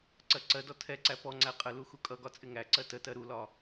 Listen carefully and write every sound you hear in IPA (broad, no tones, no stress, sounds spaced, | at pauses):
ǀ ɜ ǀ ɜ d ɔ tʰ ɛ ǀ æ p ɔ ŋ͡ǀ æ qʼ ə l u x u kʼ ʌ ɡ ɒ t͡sʼ ɪ ŋ æ ǀ ɜ t ə t ɜ ɾ u l ɒ